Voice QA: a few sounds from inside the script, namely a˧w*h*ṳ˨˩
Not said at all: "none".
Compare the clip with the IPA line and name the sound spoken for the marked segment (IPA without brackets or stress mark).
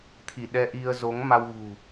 ɣ